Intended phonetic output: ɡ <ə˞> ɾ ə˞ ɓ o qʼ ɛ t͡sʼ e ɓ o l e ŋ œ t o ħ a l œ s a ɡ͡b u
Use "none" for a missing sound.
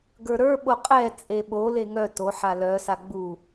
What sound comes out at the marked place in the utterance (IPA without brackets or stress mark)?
ə˞